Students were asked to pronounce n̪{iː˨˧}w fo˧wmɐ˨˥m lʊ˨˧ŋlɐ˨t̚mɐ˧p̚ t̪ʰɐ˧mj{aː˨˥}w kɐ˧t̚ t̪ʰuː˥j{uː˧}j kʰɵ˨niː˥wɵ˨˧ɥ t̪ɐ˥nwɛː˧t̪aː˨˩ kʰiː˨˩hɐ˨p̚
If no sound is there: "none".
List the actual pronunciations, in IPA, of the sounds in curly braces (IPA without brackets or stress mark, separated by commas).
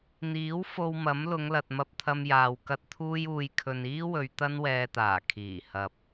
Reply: iː˨˥, aː˨, uː˧